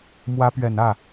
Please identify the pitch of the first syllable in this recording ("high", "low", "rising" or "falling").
rising